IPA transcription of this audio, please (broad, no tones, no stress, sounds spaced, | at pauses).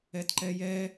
ɛ t ǃ ɛ j ɛ